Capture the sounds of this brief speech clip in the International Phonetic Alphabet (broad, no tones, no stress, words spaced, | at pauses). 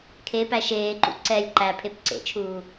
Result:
kʰe pæʃeːǃṵ ǀɛlʲ ǃæ pʰepǀḛt͡ʃʰuː